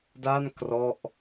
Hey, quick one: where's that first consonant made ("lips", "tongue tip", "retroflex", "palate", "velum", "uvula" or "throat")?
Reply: tongue tip